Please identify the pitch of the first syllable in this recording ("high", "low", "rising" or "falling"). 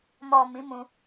low